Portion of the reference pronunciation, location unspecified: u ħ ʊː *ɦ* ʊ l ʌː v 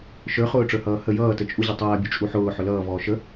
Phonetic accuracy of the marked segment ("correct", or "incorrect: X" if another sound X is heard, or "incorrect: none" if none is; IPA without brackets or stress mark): incorrect: ħ